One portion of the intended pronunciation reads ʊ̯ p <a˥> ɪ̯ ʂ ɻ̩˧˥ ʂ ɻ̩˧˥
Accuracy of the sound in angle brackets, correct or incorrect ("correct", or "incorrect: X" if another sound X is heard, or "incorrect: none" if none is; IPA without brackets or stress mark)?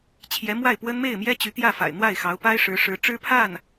correct